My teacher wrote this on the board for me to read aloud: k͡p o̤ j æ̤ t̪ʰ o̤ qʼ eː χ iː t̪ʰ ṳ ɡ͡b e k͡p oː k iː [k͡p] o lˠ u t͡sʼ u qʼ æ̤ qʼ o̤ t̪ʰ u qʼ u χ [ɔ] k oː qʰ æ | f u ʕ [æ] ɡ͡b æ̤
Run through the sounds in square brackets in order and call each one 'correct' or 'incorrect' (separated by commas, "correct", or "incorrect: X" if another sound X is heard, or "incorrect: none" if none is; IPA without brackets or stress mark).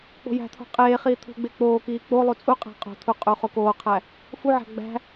correct, incorrect: o, incorrect: æ̤